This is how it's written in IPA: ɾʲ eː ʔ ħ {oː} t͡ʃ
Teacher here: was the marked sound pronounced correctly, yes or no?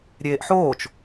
yes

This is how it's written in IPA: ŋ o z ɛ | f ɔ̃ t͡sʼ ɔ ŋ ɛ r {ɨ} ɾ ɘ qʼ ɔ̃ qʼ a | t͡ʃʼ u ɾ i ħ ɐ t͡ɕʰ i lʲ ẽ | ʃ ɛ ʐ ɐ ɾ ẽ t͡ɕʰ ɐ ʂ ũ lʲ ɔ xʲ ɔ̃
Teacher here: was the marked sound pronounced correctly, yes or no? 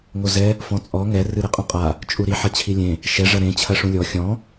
yes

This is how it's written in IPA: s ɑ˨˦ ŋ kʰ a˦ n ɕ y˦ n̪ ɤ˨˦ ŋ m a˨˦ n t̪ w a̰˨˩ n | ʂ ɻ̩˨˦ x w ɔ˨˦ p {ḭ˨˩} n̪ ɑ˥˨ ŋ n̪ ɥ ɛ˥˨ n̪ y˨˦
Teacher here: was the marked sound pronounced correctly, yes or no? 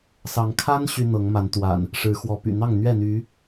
no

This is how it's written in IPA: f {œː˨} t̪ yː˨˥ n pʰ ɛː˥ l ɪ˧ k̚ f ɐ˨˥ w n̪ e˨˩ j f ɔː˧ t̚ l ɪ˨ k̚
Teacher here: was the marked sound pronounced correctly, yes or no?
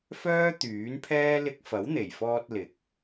no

